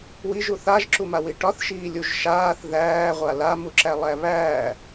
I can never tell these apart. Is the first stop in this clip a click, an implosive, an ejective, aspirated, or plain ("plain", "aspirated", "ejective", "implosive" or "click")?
click